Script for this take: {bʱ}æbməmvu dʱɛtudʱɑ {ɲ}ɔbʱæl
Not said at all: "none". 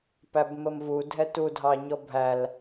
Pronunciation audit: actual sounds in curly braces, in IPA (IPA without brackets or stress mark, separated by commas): p, ɲ